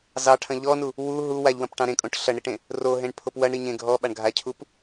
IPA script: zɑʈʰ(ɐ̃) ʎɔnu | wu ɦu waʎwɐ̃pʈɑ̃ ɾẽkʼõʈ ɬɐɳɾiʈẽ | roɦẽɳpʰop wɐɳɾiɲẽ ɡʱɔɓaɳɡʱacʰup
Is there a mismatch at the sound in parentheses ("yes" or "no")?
no